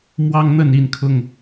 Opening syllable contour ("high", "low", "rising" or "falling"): high